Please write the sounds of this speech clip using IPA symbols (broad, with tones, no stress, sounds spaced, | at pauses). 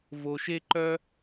v o˧ ʃ e˥ ǃ œ˥